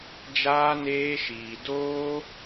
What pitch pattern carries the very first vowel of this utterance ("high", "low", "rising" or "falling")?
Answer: high